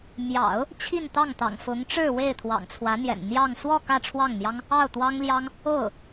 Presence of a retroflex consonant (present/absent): present